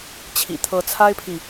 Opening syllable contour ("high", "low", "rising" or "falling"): low